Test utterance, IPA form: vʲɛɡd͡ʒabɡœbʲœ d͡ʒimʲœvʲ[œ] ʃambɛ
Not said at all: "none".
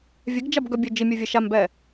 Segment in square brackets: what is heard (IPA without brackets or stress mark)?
ɛ